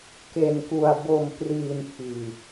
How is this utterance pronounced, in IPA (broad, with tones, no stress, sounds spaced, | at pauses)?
k e˨˩ n k u˨˩ a̯ b o˨˩ m p r iː˨˩ n pʰ iː˨˩